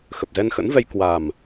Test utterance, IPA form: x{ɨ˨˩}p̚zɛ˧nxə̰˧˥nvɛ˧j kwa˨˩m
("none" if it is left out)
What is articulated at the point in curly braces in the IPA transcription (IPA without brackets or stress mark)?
ə˨˩